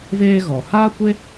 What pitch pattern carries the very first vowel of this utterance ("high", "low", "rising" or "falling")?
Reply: high